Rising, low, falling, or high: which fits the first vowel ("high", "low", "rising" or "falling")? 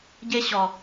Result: high